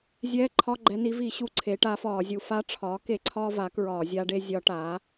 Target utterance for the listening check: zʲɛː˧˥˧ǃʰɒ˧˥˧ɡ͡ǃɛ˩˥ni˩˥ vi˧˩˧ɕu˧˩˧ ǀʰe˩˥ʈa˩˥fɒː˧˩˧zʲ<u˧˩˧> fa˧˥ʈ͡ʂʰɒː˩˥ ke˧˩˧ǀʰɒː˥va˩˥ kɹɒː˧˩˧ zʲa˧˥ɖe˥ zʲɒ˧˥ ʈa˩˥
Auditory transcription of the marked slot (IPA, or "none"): u˧˩˧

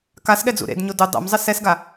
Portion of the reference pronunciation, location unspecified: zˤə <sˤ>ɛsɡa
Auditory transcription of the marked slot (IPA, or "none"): s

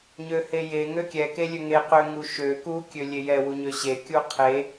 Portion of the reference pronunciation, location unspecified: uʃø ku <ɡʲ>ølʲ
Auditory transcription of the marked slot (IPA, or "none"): kʲ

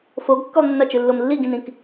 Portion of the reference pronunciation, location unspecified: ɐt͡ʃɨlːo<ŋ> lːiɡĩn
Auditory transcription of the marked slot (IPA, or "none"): m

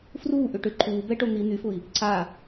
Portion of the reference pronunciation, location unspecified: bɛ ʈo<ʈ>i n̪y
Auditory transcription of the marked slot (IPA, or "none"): n̪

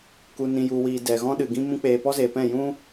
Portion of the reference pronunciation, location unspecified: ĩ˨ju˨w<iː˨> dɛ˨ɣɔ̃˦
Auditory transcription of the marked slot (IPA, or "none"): iː˨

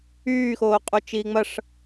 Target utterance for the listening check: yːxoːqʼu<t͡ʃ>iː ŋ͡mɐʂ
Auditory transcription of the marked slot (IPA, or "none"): t͡ʃ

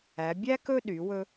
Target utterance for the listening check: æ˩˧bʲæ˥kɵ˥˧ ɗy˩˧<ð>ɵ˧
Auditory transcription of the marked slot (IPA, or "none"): w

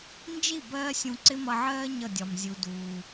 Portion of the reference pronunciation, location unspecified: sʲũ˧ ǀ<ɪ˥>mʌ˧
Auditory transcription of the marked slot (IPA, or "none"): ɪ˥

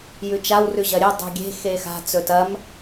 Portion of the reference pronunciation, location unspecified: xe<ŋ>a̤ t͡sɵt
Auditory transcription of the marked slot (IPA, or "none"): x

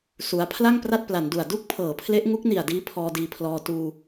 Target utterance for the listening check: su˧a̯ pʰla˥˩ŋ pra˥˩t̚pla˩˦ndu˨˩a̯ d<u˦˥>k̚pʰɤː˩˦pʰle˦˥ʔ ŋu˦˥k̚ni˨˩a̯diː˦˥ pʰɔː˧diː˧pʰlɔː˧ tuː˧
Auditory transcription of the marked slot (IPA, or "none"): u˥˩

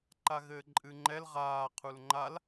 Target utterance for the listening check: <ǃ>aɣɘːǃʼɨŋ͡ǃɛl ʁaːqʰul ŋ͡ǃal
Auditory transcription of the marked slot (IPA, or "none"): ǃ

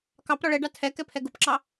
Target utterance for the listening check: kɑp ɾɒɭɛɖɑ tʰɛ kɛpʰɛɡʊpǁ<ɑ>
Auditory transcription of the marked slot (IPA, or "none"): ɑ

